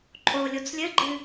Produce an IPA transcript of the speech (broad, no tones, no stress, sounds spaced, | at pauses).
ǃʼ o lʲ o t͡s lʲ ɘ ɡ͡ǃ ɨ